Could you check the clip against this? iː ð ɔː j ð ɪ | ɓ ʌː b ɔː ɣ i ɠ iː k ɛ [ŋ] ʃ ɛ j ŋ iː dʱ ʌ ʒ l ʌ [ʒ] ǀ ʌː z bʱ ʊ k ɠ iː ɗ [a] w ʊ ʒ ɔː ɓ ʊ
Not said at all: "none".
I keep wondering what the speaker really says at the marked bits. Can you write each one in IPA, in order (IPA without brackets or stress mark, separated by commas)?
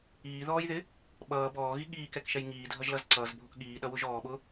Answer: k, z, ʌ